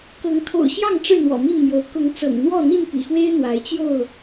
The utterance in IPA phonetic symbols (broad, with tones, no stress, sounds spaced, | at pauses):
k ɤ˨˦ ŋ t̪ʰ o̰˨˩ ʊ̯ ɕ j ɑ˥˨ ŋ ʈ͡ʂ ɻ̩˥˨ n̪ w ɔ̰˨˩ m i˥˨ n m j o˨˦ ʊ̯ k ʊ˨˦ ŋ t͡s ɤ̰˨˩ ŋ n̪ w ɔ˥˨ n̪ i˥˨ n p ḭ˨˩ x w e˦ ɪ̯ n̪ w a˨˦ ɪ̯ t͡ɕ j o˥˨ ʊ̯